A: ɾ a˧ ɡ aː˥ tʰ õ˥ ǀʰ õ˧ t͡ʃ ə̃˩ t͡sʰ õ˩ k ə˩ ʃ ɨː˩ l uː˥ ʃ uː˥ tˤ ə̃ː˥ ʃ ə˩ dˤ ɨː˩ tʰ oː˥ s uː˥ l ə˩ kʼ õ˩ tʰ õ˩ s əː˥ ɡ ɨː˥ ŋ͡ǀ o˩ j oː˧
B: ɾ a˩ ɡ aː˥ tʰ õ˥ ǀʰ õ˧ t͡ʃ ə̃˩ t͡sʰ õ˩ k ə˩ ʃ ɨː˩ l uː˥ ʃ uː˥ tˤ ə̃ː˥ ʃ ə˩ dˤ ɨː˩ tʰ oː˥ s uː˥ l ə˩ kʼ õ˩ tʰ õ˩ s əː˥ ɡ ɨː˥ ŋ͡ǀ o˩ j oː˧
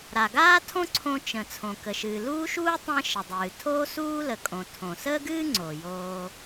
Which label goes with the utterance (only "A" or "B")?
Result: B